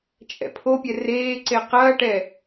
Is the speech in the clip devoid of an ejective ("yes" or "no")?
no